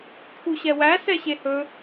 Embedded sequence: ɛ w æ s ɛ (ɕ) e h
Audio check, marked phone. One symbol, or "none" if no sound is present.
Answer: ɕ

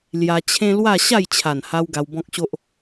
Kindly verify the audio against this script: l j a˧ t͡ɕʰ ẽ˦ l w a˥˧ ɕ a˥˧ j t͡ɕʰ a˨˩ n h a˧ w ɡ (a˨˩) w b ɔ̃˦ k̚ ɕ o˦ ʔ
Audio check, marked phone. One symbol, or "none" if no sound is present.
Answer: a˧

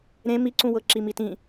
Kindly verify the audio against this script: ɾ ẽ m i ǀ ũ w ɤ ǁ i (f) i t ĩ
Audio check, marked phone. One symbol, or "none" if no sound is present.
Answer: m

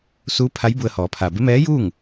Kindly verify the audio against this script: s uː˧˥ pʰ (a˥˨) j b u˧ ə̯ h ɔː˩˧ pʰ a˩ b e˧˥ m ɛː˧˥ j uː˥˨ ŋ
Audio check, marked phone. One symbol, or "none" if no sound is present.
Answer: a˧˥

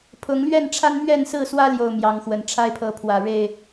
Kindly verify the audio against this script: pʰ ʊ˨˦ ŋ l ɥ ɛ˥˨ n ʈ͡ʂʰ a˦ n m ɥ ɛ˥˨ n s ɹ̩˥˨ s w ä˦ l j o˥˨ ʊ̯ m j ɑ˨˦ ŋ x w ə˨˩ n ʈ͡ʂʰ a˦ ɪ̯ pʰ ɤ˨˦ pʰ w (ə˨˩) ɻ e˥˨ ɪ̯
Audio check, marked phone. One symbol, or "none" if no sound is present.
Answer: ä˨˩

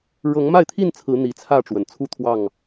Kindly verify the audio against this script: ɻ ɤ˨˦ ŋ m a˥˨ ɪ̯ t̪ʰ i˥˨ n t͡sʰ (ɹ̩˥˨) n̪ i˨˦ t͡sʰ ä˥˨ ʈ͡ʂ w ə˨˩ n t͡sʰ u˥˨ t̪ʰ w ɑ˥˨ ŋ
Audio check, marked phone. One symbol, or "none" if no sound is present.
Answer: ɹ̩˨˦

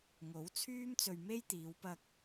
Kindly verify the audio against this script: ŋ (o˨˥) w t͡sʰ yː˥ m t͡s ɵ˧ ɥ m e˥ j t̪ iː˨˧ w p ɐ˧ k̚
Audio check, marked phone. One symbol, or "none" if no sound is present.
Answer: o˨˥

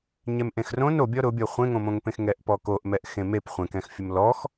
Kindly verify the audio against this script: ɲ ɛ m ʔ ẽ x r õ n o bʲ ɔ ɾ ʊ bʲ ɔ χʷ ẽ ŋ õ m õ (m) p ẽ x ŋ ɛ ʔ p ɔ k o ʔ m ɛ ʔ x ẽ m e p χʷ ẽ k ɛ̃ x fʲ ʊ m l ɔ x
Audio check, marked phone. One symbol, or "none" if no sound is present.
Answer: ŋ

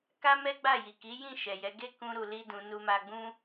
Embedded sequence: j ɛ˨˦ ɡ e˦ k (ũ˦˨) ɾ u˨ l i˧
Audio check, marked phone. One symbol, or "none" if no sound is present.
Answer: ũ˧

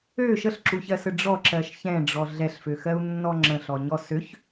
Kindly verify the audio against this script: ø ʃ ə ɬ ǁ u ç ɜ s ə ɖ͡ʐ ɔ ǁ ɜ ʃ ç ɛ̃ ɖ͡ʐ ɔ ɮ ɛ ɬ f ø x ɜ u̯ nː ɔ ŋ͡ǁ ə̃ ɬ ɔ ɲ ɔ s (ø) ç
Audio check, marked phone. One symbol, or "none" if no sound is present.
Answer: ø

